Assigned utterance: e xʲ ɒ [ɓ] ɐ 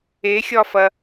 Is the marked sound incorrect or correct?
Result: incorrect